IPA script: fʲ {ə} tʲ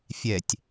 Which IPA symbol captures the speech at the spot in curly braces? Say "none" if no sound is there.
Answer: ɛ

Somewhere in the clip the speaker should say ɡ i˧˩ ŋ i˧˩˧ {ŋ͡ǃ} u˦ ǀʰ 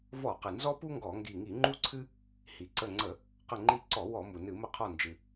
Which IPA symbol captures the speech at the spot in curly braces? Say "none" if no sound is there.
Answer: ŋ͡ǃ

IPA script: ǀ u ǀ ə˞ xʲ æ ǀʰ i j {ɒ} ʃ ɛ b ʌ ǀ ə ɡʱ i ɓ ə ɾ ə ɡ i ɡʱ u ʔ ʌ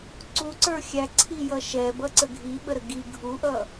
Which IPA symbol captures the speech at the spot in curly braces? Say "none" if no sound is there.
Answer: ʌ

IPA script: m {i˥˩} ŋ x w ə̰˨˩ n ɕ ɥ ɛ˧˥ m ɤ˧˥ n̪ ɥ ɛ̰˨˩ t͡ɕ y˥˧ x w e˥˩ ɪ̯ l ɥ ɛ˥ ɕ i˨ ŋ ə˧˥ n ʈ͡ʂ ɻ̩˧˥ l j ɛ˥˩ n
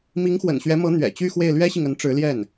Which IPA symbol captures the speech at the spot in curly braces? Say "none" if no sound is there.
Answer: i˧˥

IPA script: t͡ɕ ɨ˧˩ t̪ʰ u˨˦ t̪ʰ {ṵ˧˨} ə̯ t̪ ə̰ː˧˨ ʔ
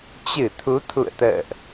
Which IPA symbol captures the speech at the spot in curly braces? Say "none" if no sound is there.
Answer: ṵ˧˨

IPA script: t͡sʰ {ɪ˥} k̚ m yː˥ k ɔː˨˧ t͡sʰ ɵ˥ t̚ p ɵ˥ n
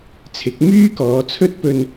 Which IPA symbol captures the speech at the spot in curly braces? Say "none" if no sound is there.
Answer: ɪ˨˥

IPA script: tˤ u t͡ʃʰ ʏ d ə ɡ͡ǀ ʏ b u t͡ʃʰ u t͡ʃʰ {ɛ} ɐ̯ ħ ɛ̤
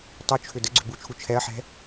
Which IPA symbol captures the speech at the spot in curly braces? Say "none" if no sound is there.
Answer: ɛ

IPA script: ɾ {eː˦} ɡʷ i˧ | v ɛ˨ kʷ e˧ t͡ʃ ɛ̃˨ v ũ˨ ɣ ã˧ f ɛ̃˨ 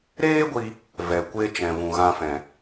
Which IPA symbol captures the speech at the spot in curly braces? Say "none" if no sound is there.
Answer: eː˦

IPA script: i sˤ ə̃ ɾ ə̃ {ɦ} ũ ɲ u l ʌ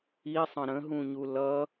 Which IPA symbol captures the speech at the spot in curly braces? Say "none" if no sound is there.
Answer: ɦ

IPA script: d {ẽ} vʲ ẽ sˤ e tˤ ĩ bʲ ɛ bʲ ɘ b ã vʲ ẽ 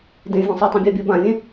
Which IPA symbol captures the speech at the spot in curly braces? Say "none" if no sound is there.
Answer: ẽ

